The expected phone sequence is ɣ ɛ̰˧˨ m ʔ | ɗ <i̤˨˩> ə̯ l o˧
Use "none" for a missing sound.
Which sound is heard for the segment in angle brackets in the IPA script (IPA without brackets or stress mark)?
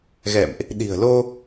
i̤˨˩